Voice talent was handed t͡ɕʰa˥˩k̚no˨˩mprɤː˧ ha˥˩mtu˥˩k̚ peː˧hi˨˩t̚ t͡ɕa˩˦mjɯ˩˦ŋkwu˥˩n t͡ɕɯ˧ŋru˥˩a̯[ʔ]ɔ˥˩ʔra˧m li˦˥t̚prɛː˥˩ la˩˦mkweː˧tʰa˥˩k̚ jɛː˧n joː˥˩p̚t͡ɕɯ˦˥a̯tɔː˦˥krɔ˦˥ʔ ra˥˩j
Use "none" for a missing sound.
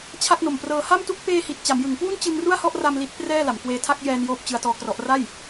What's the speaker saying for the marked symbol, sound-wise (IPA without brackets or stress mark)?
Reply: h